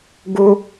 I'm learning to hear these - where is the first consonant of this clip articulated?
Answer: velum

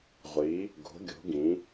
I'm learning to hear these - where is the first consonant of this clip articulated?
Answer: uvula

